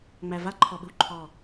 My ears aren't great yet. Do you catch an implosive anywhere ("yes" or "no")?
yes